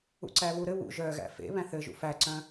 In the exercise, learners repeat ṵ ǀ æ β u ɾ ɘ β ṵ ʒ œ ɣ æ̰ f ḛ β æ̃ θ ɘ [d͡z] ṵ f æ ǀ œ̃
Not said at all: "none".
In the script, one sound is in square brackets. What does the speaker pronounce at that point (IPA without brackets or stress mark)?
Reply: ʒ